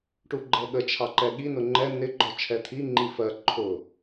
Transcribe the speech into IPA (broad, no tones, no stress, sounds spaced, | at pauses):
ʈ u ɡ͡ǃ ɛ ɠ ə t͡ʃʰ ɑ ǃ ɛ ɠ i n ʊ ŋ͡ǃ ɛ n ɪ ɡ͡ǃ ɔ t͡ʃʰ ɛ t̪ʰ i ŋ͡ǃ i f ɜ ǃʰ ʊ